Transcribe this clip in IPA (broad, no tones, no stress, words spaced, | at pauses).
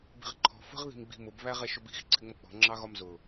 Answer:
bi̤ʁǃʰɔ̤ fə̤ʁ ði̤mɡ͡bi̤mʊb βæʁɛʃʊbi̤x ǀʰɪŋ͡mʌk͡pɔ̤ ŋ͡ǁɑɣɒmzʊ